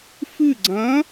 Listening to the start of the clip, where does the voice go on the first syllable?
falling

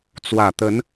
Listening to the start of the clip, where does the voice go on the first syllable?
low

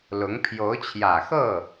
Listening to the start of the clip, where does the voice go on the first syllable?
rising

